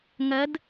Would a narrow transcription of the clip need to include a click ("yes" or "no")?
no